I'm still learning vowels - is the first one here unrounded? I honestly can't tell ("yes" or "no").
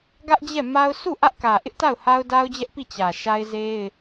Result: yes